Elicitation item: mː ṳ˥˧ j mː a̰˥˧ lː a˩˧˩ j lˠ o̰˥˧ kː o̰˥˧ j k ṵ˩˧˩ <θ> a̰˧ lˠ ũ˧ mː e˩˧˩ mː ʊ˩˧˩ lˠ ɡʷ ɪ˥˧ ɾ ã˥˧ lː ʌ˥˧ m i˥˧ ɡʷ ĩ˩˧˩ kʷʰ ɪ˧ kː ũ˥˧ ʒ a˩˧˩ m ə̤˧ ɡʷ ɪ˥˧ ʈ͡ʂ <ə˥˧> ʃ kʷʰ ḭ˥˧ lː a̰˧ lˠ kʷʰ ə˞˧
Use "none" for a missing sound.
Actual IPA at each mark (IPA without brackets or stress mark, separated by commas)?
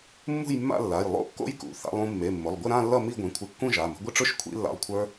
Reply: θ, ʊ˥˧